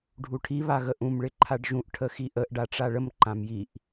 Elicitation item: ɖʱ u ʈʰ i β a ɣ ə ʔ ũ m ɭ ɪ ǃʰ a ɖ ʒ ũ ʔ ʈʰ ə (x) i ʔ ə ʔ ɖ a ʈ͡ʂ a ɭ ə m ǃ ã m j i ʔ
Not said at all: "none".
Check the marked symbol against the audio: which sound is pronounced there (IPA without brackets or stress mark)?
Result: x